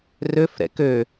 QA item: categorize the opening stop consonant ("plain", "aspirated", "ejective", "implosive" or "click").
plain